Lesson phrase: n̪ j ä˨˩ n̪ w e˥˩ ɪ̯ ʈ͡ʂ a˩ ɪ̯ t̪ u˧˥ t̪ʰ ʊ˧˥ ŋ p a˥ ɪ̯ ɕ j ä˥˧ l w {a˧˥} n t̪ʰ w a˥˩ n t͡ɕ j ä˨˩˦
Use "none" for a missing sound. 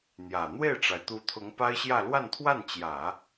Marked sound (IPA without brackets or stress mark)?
a˥˧